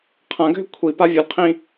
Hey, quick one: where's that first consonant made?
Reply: uvula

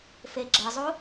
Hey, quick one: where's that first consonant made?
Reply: lips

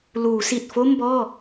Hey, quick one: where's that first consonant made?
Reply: tongue tip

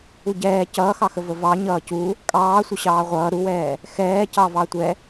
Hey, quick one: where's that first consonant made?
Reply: palate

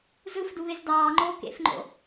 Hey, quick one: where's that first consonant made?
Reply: tongue tip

